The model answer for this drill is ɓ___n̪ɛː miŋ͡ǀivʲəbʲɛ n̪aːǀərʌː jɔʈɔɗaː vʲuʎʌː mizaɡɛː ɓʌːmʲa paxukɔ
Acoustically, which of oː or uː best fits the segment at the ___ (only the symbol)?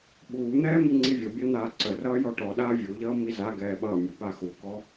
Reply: uː